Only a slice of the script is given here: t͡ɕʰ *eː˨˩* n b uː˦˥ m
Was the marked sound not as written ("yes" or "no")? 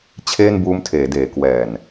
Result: yes